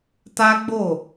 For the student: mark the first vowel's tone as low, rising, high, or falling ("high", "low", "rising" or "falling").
high